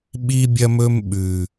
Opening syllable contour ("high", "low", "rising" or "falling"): high